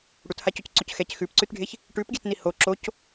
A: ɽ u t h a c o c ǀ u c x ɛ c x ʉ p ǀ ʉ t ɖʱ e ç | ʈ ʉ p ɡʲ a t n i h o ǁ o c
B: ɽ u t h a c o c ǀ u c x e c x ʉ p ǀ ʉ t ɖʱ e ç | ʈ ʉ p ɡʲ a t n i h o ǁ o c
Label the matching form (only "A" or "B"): A